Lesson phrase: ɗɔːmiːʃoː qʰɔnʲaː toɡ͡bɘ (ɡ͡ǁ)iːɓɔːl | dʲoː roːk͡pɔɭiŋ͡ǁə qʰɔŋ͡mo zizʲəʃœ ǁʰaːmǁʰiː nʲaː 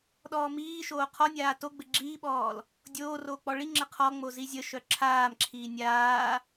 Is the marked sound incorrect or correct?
correct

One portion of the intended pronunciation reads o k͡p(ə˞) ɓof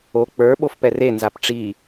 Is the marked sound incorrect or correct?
correct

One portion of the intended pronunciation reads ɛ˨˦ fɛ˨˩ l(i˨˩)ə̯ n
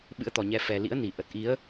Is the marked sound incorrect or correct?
incorrect: ḭ˧˥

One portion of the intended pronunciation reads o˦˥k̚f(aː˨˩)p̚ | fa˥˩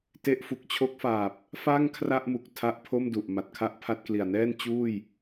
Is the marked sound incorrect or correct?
correct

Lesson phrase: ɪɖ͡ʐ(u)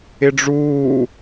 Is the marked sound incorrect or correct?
incorrect: uː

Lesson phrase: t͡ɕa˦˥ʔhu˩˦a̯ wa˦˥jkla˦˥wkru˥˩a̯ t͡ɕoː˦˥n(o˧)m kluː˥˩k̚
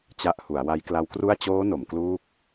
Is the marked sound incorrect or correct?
incorrect: o˩˦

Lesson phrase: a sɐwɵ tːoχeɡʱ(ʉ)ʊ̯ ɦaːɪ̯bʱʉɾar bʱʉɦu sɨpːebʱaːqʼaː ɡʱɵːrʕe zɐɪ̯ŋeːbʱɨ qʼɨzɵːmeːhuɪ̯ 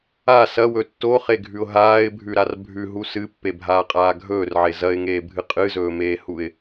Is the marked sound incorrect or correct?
correct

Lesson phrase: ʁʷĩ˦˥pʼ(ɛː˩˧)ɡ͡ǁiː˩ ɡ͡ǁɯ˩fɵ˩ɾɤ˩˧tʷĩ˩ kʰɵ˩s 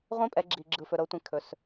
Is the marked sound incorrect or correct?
incorrect: ɛ˩˧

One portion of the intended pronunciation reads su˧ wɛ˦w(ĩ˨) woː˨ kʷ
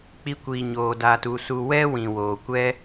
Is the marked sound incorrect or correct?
correct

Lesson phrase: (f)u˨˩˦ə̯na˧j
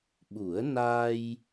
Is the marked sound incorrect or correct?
incorrect: ɓ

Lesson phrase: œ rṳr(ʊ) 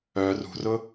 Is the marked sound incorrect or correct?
correct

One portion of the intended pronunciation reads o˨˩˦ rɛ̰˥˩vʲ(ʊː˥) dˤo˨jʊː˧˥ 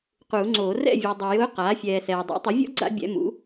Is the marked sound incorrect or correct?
incorrect: ʊː˨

